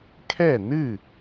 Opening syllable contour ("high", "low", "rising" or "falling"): falling